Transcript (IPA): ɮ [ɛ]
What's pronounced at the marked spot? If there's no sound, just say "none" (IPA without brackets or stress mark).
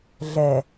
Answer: ɛ